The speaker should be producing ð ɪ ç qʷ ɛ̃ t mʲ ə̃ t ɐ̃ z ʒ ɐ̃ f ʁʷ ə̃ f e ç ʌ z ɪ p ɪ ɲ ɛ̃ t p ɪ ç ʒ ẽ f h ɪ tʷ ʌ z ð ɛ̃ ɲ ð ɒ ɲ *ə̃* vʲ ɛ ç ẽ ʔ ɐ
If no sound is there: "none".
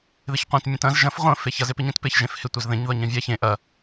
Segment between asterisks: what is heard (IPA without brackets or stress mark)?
ɐ̃